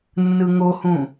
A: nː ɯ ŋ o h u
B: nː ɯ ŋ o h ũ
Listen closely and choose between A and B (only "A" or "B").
B